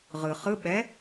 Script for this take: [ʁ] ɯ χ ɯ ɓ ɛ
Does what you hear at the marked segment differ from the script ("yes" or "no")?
no